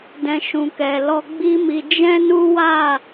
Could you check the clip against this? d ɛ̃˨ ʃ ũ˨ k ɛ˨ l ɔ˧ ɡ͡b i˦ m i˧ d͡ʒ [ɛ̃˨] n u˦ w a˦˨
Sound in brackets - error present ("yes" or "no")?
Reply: yes